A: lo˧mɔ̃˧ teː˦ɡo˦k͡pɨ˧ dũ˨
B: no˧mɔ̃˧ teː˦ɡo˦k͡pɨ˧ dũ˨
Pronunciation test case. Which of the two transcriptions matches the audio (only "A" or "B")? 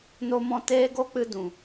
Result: B